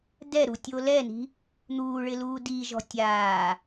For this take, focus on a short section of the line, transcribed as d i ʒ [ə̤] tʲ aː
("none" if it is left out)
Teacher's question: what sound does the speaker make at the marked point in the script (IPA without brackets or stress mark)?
ɔ̤